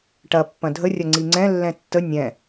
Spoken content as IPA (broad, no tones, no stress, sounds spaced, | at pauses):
ʈ ɐ pː ɐ̃ dʱ ə rʲ ɐ ŋ͡ǀ i ŋ͡ǀ ɛ̃ lː ɛ̃ tː ə nʲ ɛ̃